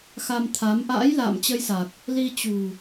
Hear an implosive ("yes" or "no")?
no